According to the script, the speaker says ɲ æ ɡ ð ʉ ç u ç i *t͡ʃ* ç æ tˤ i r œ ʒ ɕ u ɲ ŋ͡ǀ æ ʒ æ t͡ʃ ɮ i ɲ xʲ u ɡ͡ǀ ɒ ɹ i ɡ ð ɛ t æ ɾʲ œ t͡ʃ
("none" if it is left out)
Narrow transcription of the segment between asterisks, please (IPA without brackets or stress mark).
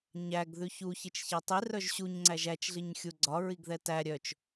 t͡ʃ